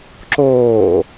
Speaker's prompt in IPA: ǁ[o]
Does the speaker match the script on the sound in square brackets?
no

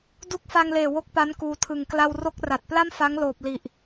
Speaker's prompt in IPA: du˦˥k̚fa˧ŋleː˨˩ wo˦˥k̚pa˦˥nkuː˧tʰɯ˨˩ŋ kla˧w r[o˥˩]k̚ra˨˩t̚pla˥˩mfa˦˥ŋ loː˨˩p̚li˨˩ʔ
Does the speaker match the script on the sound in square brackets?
no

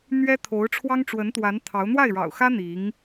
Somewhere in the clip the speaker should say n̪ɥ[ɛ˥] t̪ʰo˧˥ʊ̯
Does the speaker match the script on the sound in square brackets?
yes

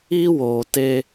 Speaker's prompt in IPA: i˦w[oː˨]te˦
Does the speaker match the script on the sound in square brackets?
yes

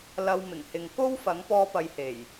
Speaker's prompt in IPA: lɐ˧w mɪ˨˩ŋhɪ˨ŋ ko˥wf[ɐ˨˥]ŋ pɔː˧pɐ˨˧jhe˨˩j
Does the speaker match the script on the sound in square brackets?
yes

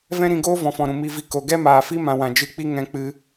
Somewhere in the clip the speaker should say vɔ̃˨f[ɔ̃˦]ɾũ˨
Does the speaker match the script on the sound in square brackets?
no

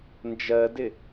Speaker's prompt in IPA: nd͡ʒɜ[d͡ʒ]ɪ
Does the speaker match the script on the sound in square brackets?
no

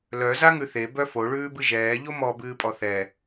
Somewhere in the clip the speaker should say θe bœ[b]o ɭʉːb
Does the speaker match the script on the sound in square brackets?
no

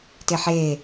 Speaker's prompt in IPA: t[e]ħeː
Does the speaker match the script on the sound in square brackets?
yes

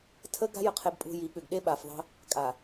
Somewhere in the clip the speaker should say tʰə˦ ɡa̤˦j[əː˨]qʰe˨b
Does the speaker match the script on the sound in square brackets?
no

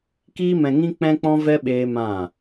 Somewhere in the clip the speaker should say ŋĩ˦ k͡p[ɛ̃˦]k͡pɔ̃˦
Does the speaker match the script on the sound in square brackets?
yes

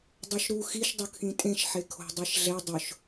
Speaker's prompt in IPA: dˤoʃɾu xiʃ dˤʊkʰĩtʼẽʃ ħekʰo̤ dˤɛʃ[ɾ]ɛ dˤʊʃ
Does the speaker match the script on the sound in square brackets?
no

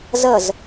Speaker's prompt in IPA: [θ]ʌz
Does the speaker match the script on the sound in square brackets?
no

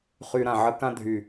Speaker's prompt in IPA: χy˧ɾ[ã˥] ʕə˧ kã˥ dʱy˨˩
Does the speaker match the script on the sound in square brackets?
no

